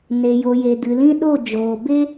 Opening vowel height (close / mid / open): mid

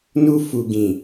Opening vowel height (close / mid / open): close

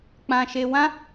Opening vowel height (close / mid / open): open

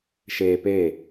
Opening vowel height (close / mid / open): mid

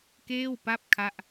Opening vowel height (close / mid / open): mid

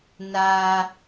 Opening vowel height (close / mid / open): open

